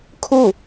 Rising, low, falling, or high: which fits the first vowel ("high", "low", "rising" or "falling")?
falling